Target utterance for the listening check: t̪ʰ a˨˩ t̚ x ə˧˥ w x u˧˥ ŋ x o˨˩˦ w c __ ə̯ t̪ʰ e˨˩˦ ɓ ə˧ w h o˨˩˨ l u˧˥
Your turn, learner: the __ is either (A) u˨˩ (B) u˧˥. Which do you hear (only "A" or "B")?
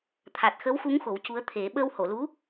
B